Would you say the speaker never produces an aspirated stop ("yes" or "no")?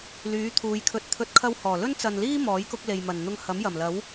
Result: no